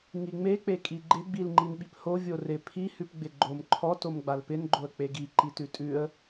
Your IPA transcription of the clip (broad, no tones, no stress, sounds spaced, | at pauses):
ŋ i ŋ͡m e k͡p e kʼ i ɡ͡ǃ ɪ ɡ͡b i l ŋ͡ǃ i n ɓ i p h o vʲ o r ɪ pʰ i h ʉ p ɡ͡b ɪ ɡ͡ǃ o m ǃʰ ɔ t o m ɡ͡b a l p ɪ n ɡ͡ǃ o ə̯ k͡p e ɡ i ǃ i t ʉ tʼ ʉ ə̯